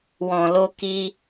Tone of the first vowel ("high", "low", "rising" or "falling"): low